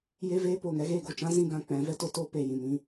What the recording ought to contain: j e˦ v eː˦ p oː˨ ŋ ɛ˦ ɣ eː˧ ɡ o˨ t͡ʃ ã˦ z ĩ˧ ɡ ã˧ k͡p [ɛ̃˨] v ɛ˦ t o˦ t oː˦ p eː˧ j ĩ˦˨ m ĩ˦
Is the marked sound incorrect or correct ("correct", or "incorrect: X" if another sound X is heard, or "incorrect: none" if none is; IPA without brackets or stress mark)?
incorrect: ɛ̃˨˦